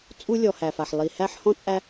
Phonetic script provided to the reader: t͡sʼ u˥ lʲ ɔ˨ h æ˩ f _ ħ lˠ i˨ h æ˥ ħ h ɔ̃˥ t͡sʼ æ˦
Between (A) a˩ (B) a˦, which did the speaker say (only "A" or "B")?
A